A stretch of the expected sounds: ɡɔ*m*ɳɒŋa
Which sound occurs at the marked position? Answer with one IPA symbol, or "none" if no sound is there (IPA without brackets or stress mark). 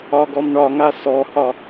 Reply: m